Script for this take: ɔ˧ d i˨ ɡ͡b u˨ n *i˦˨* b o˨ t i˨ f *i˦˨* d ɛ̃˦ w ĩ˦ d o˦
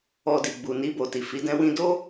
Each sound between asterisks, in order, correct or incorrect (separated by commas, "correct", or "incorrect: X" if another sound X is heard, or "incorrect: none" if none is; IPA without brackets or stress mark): incorrect: i˧, incorrect: i˨˦